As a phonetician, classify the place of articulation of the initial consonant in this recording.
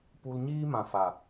labial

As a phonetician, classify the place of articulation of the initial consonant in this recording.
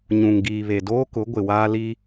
palatal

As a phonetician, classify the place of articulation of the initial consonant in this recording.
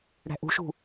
retroflex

